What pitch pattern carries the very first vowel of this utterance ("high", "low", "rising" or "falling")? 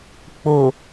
low